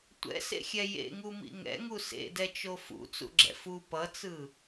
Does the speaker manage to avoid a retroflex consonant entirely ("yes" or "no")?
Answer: yes